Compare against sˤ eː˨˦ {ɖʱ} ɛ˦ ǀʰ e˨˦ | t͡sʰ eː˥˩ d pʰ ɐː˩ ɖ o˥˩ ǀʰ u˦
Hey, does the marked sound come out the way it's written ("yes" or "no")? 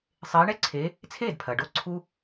no